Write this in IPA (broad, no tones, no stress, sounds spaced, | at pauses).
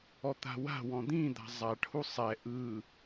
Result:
ɔ t̪ a̤ w a̤ w ɔ̃ d̪ ĩ d̪ a̤ zˤ a ʈʰ u sˤ ɛ ʔ ɯ